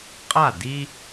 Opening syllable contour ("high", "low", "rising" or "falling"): falling